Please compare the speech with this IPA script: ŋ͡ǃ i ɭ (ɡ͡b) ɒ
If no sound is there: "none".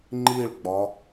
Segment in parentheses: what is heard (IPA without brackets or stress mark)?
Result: ɡ͡b